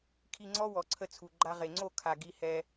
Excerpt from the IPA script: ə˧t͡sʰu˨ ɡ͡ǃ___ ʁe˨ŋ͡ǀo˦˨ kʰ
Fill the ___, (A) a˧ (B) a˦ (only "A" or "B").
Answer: A